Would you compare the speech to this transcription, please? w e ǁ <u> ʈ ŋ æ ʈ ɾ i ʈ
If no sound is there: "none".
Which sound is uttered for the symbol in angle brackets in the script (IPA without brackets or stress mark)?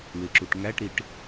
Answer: u